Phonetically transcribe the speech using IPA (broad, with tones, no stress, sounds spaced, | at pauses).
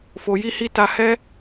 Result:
f o˧ j i˦ h i˦ t a˦ h ɛ˦